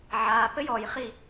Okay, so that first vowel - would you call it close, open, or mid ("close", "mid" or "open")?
open